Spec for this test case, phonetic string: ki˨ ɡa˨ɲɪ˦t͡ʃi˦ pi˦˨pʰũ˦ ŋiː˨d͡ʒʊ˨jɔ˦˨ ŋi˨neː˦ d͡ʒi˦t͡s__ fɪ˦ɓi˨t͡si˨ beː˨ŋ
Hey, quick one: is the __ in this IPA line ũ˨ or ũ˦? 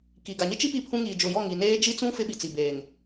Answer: ũ˦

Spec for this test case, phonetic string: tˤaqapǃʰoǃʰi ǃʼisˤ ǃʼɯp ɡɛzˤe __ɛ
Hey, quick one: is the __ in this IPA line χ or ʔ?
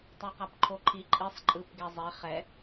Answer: χ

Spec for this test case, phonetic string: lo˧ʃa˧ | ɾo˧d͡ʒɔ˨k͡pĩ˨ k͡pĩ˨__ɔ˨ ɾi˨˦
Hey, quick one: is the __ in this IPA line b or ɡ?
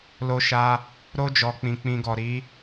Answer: ɡ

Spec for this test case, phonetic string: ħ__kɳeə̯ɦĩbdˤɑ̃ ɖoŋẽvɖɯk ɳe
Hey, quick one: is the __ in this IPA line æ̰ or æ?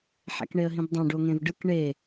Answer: æ̰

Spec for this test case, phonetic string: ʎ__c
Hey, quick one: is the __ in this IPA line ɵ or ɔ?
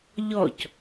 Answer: ɔ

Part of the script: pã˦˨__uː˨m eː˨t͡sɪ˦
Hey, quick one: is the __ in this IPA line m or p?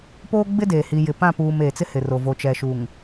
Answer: p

